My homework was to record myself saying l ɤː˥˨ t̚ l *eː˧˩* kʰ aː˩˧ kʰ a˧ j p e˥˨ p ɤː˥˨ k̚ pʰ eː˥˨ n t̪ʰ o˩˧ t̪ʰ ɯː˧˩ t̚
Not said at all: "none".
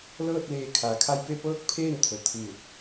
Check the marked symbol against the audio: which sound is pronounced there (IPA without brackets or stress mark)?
eː˧˩